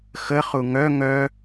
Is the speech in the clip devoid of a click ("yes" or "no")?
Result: yes